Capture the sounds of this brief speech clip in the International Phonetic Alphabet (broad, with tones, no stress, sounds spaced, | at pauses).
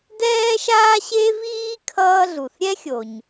d ɛː˥ ʃ aː˥ ɕ e˥ v iː˥ kʰ ʌː˥ ɮ u˩ θ ɾʲ ɛ˥ xʲ o˩ ɲ